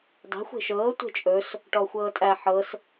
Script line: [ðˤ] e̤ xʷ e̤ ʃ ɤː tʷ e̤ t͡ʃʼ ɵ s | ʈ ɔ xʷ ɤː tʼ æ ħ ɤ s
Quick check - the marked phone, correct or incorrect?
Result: incorrect